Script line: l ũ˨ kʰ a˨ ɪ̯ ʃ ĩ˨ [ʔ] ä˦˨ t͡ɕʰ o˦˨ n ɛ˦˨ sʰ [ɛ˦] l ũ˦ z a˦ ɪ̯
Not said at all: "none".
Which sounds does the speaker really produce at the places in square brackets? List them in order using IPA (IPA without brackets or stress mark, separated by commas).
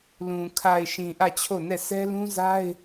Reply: ʔ, ɛ˦